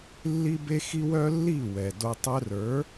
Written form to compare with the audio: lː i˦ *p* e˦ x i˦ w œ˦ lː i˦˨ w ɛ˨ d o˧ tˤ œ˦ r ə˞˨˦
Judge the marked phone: incorrect: b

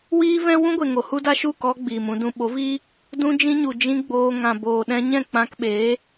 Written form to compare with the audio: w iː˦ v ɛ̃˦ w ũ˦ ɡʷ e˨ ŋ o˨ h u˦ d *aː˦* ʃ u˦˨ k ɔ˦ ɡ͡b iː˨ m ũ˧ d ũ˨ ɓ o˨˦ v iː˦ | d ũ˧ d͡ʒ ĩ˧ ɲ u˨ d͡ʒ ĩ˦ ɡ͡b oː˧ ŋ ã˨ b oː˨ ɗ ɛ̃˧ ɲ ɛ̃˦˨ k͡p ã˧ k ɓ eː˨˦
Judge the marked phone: incorrect: a˦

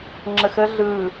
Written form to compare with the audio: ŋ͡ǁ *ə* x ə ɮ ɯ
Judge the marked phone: correct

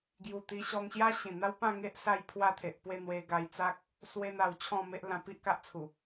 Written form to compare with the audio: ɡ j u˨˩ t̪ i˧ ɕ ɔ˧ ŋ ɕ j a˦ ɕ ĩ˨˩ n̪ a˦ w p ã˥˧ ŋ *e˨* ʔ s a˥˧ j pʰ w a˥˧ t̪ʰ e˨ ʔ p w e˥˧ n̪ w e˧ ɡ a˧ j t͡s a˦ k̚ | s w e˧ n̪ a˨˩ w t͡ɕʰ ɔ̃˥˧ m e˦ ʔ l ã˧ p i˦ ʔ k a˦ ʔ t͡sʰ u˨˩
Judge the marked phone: incorrect: e˦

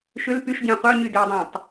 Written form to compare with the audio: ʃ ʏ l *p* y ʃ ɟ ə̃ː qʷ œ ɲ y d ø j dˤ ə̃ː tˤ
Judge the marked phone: correct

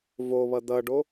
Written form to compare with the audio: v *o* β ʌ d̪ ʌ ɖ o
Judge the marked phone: correct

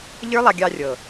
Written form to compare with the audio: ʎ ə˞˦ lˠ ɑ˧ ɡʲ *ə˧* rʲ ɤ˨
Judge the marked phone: incorrect: ɑ˧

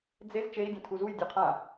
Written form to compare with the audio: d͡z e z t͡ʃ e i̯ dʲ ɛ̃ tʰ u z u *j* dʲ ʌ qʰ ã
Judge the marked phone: correct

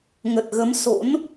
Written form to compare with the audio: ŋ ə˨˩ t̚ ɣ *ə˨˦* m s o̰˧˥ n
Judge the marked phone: correct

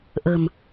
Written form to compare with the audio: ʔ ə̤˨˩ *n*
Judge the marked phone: incorrect: m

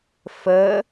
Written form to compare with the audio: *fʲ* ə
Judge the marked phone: incorrect: f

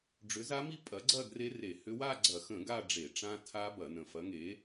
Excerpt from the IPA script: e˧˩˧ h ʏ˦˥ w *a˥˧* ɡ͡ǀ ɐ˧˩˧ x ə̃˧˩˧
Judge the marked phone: correct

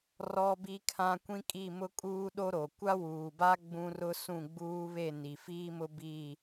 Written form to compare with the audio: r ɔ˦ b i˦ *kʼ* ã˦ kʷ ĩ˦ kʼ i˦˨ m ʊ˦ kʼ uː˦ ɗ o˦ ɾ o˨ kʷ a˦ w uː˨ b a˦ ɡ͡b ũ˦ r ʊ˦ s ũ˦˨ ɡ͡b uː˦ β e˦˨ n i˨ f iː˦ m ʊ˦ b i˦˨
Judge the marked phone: incorrect: kʰ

